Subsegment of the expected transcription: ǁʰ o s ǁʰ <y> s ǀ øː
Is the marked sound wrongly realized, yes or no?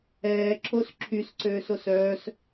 no